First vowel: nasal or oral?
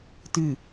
oral